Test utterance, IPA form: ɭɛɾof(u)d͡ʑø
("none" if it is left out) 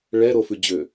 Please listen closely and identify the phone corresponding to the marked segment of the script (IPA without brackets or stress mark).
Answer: ʉ